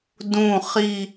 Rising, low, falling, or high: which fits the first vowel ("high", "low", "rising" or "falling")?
low